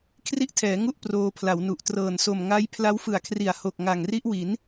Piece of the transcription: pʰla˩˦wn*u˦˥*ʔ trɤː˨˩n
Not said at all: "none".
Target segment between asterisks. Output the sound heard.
u˨˩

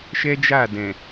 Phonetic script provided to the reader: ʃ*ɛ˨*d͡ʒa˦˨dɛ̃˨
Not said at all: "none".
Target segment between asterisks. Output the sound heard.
ɛ˦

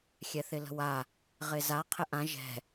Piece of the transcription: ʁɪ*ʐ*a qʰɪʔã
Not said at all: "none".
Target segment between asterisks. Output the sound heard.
z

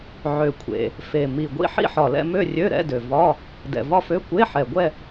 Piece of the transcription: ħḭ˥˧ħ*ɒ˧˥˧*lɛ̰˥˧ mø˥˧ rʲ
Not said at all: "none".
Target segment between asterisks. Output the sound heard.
ɒ˨˩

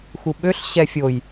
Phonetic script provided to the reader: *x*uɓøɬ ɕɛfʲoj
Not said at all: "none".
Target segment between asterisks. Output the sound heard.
x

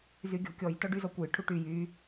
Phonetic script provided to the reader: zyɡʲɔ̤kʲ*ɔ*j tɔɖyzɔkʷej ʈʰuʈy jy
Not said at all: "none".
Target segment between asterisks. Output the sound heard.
ɔ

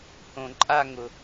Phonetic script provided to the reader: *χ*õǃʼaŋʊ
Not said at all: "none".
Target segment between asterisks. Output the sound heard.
h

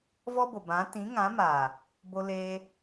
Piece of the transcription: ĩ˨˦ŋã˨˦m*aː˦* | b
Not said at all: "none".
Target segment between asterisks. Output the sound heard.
aː˨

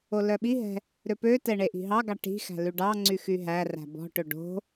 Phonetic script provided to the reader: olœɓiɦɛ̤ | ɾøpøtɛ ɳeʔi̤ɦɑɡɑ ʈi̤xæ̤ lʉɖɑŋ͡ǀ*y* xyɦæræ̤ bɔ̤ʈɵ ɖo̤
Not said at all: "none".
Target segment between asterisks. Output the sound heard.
y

